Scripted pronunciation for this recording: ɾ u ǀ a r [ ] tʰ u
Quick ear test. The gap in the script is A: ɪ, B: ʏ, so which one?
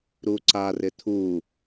A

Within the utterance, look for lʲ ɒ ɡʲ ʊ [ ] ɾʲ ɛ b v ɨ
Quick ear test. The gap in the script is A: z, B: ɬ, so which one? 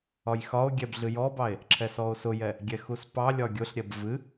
B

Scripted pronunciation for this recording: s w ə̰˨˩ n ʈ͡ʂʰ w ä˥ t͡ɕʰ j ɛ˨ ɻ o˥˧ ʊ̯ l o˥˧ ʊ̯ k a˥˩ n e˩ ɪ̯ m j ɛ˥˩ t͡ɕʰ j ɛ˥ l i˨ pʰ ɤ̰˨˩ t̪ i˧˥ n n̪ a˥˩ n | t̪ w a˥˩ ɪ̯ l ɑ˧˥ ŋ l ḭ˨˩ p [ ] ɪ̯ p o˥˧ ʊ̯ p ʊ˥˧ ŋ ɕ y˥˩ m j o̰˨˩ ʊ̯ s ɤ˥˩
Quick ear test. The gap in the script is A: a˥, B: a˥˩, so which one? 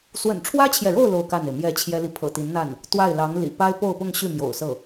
A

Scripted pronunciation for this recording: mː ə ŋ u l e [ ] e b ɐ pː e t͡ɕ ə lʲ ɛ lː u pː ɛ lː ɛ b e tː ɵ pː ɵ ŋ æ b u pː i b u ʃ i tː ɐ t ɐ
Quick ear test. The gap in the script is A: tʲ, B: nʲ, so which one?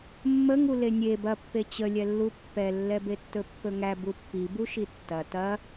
B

